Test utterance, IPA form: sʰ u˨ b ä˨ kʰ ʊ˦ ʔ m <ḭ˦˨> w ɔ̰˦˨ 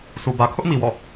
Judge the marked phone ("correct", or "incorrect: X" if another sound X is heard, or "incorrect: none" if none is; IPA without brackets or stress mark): incorrect: i˨